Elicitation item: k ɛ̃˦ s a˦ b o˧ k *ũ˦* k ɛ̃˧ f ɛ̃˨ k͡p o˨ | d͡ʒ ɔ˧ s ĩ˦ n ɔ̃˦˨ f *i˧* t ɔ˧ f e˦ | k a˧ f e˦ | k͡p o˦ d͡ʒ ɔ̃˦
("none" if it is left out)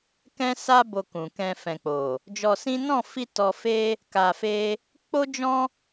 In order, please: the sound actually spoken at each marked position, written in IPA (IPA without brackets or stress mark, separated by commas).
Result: ũ˨, i˧